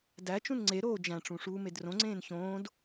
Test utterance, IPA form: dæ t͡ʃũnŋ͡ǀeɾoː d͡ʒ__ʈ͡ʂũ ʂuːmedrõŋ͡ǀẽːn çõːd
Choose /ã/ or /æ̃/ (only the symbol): æ̃